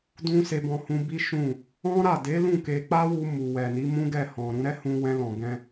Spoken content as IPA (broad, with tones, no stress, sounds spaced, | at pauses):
d ũ˧ s e˧ b ɔ̃˧ h ũ˧ b i˦ ʃ ũ˦˨ | ɔ̃˦ ɾ a˦˨ d e˨˦ l ũ˦˨ k e˧ k͡p a˦ w u˧ m u˨ w ɛ˨ n i˨˦ m ũ˦ ɡ ɛ˦˨ h ɔ̃˨ ɾ ũ˧ ɾ ɛ˦ h ũ˧ w ɛ̃˧ l ɔ̃˨ ɡ ɛ̃˧